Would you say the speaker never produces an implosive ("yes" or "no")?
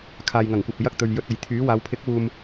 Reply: yes